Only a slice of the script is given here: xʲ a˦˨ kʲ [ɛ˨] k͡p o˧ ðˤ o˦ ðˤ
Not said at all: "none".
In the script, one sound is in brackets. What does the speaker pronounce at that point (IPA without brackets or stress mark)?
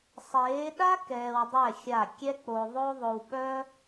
ɛ˦